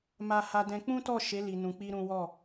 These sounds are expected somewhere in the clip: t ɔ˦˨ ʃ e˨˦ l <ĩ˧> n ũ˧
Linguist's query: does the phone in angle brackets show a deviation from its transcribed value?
yes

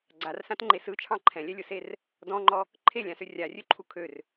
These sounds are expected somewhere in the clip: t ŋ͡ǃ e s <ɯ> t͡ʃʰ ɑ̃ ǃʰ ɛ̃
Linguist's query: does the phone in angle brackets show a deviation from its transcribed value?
no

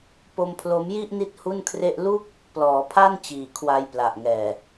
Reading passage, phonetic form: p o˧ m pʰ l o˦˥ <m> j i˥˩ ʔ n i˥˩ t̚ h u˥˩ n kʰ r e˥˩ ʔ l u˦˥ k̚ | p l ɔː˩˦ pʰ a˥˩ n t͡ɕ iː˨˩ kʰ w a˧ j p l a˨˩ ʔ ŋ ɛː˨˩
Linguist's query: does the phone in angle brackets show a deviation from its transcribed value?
no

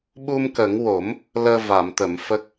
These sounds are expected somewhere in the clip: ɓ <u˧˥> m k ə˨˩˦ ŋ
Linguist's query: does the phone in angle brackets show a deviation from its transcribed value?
yes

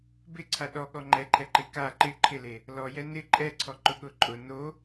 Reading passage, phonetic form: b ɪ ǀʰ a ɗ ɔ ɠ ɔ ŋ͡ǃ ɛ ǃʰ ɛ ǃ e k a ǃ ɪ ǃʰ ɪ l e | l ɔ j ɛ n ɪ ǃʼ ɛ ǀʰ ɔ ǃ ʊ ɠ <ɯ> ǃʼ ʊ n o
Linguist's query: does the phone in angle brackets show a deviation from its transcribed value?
yes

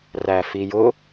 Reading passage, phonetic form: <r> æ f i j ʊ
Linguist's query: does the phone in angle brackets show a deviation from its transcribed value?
no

